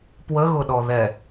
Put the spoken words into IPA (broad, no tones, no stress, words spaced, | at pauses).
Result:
pwəɣʊɗɔ ðɛ